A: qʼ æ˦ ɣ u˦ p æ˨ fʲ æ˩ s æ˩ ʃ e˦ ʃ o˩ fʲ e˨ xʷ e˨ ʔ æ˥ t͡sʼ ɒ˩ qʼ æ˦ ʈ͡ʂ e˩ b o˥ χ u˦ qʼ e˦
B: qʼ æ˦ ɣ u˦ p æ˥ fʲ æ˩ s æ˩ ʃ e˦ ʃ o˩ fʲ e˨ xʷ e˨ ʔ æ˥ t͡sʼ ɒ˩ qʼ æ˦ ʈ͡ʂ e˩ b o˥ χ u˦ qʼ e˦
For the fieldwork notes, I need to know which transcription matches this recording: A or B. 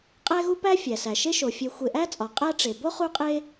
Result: B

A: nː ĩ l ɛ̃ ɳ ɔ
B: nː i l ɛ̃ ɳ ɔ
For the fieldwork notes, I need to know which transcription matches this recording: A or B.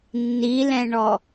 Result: B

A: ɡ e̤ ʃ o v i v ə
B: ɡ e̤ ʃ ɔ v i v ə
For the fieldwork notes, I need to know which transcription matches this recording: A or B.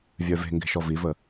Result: B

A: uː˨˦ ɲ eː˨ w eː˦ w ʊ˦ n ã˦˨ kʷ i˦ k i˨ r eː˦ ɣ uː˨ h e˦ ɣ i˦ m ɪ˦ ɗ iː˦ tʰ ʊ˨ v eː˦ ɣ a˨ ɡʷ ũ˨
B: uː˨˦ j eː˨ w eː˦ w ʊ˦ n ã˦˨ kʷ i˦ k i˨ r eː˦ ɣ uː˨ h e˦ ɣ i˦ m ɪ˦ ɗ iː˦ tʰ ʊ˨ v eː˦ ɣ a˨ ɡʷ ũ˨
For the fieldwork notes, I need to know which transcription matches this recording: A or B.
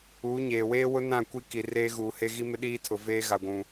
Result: A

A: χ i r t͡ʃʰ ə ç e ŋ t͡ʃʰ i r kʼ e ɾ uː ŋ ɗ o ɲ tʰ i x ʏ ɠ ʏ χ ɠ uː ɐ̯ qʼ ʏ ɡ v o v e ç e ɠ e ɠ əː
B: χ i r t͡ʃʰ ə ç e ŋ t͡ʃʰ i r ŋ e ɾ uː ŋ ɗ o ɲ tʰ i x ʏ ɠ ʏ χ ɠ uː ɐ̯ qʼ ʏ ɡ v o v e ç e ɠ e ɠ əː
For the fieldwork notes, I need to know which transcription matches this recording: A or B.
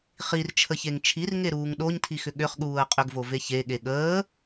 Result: B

